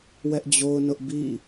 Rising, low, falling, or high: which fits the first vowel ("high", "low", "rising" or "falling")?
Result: high